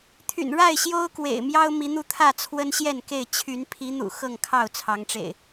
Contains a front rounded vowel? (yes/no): yes